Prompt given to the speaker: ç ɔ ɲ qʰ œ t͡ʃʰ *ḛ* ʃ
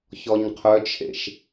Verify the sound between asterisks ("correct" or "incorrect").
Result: correct